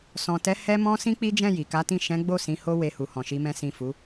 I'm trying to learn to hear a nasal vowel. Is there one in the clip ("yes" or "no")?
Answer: yes